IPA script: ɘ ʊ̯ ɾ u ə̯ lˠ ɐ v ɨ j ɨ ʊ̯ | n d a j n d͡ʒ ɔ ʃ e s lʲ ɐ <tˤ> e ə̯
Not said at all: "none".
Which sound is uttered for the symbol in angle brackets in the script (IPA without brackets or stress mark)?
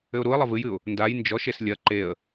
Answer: ǃ